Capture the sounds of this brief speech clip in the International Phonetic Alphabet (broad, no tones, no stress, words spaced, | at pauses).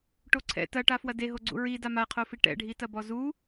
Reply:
ʈoǀʰɛ̰ tɐʈa fwɐdeɦoɡ͡ǀṵ ɹi damaqʰofi ʈɛ̰ɖʱi tɐbɔzu